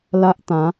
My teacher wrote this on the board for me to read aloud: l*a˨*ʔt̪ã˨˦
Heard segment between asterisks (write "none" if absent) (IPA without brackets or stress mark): a˦